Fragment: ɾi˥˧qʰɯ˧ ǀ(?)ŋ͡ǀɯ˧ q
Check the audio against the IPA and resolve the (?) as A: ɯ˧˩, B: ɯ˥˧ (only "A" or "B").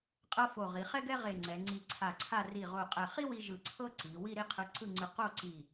B